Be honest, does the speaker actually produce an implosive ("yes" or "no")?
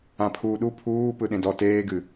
yes